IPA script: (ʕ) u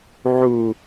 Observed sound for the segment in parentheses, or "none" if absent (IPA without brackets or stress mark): ʕ